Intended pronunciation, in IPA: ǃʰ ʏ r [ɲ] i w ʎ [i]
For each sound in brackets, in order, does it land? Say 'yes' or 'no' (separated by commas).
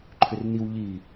no, yes